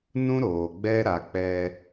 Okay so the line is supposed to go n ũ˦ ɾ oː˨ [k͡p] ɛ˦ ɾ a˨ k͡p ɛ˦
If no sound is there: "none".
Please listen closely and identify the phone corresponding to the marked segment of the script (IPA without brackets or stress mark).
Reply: ɡ͡b